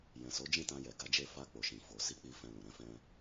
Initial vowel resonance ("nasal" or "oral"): nasal